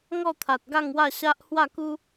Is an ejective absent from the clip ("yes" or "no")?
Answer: yes